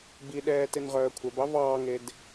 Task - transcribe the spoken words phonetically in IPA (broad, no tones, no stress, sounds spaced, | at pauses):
b i ɗ ɛː t e n ʁ œː kʷʰ œ b ɑ v ɑː ŋ e d